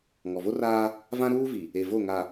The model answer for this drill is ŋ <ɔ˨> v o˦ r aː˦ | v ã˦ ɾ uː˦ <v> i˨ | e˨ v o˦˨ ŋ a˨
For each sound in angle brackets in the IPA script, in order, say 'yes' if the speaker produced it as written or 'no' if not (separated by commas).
yes, yes